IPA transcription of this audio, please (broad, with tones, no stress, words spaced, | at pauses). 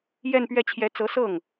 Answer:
jɛ˥˧npɥɛ˥˩ t͡ɕʰjɛ˧˥t͡sɤ˧˥ sɤ˥˩ŋ